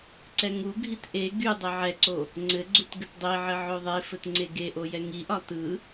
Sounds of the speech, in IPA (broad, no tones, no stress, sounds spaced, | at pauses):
ǀ ɛ ŋ u ɡʱ i t ʔ e ɡ y dˤ ɘ ʕ ɛ ǀ o | ŋ͡ǀ ɘ ɡ͡ǀ u t ɡ ɘ t dˤ i ʕ ɘ ʕ o ðˤ e f ɘ t ŋ͡ǀ e ɡ e ʔ o j ɛ ŋ i ʔ ɒ t ɯ